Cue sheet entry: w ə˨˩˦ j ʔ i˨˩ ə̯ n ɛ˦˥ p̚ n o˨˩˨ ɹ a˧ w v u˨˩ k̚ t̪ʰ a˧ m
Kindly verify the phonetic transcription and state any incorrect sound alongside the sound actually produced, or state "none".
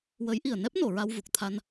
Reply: m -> n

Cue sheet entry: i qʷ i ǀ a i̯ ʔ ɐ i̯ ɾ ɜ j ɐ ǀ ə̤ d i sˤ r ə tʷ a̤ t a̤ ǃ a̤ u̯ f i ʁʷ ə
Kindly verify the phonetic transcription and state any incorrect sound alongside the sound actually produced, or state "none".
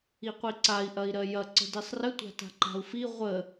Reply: none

